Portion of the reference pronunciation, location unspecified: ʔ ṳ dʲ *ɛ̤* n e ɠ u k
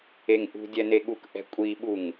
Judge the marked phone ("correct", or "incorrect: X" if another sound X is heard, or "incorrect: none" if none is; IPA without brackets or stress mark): incorrect: ɛ